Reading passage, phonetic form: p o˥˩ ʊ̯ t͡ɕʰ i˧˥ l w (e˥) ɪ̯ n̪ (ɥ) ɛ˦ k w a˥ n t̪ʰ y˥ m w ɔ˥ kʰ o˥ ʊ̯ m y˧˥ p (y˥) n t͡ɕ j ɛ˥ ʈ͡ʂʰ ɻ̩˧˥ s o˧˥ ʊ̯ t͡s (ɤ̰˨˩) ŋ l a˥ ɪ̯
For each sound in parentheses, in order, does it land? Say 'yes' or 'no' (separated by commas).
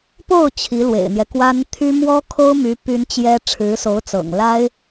no, no, yes, yes